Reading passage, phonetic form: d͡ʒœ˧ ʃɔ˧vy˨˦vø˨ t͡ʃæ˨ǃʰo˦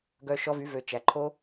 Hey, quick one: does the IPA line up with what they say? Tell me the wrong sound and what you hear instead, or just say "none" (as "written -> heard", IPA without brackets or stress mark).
d͡ʒ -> ɡ